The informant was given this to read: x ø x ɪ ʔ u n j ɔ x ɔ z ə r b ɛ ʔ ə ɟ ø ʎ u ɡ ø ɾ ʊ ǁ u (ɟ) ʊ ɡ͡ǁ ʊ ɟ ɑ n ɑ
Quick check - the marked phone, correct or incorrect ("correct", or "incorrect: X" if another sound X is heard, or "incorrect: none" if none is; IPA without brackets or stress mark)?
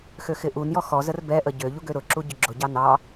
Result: correct